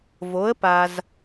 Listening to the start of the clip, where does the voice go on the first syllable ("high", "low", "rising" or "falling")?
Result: rising